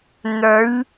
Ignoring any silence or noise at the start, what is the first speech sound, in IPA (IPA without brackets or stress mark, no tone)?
n̪